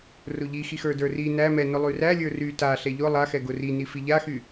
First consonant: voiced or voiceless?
voiced